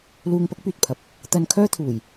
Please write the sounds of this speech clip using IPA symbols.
l uː˧ ŋ p ɐ˥ k̚ p yː˨ t̚ pʰ ɐ˨˥ p̚ | t̪ ɐ˧ n kʰ œː˥ t̪ʰ uː˨˩ j

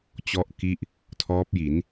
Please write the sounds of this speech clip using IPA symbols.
t͡ɕ ɔ˥˩ ʔ k i˥˩ ʔ | tʰ ɔː˦˥ p̚ j i˩˦ n

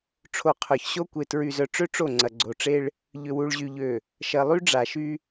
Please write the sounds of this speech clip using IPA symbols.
ʈ͡ʂʰ o˨ qʰ œ˨ ç ɕ o˦ kʷ e˨ t ɹ y˨ z œ˨ ʈ͡ʂ ø˦ ʈ͡ʂ o˦˨ ŋ͡ǀ ɐ˨ ɡ͡ǀ o˨ ʈ͡ʂ e˦ ɭ | ʎ ʏ˨ w u˨ ɭ ʑ y˨ ʎ ø˨ | ʃ ɐ˨ lˠ y˦ ɖ͡ʐ a˨ ʃ y˦

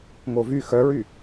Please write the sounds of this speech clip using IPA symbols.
ŋ o v y x œ ɹ y

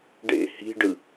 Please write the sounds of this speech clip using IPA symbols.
ɖ ḛ h i̤ ɖ ɯ

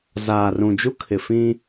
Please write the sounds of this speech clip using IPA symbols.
z aː˨ r ũ˨ d͡ʒ u˦ kʰ ɪ˨ f ĩ˦

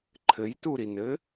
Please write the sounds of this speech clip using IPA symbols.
ǃʰ ɘ j t u ɾ i n ɘ

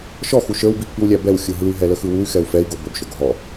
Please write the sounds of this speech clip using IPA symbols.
ʃ ɔ x u ʃ ə˞ w b i pː i w lʲ æ b ɛ w xʲ ɯ ɦ ɯ y̯ ɦ ɛ l ə x ɯ w u y̯ x ɛ u̯ f ɛ i̯ ɡ o b ə b ʃ o ɡ ɦ ɔ

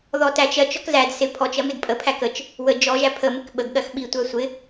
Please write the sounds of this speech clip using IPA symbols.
ð ɔ t æ t͡ʃ ɜ t͡ʃ ɔ k z æ d s ɪ pʰ ɔ t͡ʃ ɜ m ɪ d pʼ ə pʰ æ k ə t͡ʃ | w ə d͡ʒ ɔ ʒ æ pʰ ə m ɪ k ɓ ə ɡ ɠ ɜ x ɓ i tʷ æ sʷ ɪ

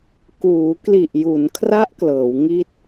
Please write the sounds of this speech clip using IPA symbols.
k uː˩˦ k l i˨˩ ʔ j u˩˦ n kʰ r a˦˥ ʔ k l ɤː˩˦ w ŋ i˥˩ t̚

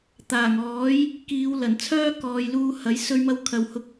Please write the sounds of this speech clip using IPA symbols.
t̪ aː˨˩ ŋ ɔː˨˥ j | k iː˨˧ w l ɐ˨˩ n t͡sʰ œː˥ k ɔː˨ j l uː˧ h ɐ˨˥ j s ɵ˧ ɥ m ɐ˧ w kʰ ɐ˨ w h ʊ˧ k̚

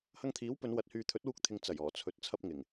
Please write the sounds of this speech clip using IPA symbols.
h ɐ˧ ŋ t̪ʰ iː˨˥ w p ɵ˨˧ n w ɐ˧ t̚ h yː˧ t̪ʰ ɵ˨˥ t̚ w uː˧ k̚ t̪ʰ ɪ˨ ŋ t͡s ɐ˨˩ j ɔː˨˩ t͡sʰ ɵ˨ t̚ t͡sʰ ɐ˧ p̚ ŋ ɪ˨˩ ŋ

